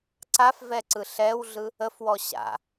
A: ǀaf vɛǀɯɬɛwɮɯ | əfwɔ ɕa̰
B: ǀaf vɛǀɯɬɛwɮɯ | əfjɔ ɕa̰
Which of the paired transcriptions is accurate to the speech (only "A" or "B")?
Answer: A